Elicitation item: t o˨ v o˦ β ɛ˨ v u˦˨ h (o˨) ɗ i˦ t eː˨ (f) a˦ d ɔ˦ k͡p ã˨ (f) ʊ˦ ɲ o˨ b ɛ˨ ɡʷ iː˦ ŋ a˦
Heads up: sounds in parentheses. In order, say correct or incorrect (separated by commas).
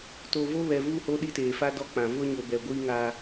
incorrect, correct, incorrect